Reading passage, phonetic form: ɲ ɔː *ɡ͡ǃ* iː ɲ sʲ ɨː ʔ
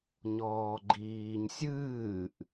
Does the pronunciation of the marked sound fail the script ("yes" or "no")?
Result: no